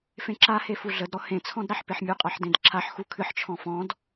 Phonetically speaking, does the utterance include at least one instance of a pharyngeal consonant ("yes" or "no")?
yes